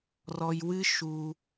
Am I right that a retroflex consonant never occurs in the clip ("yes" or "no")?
yes